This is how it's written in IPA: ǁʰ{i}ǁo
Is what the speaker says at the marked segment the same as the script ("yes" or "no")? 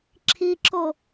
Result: yes